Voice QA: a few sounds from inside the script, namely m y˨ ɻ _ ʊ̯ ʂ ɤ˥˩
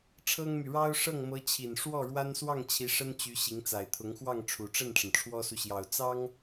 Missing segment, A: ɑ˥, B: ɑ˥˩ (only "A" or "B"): A